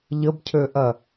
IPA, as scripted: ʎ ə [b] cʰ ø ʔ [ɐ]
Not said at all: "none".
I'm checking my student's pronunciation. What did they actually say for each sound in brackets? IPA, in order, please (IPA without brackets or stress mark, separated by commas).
b, ɐ